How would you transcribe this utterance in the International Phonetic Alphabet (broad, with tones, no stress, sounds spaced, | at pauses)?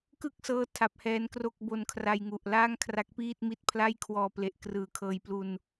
k ɯ˥˩ k̚ s ɤː˦˥ tʰ a˦˥ p̚ h ɛː˦˥ n k r o˥˩ k̚ b o˧ n kʰ r a˧ j ŋ u˨˩ ʔ l aː˥˩ ŋ kʰ r a˦˥ k̚ p iː˥˩ t̚ m i˦˥ t̚ pʰ l a˥˩ j kʰ w ɔː˧ p l e˨˩ ʔ k r ɯː˩˦ kʰ ɤː˧ j p l u˧ n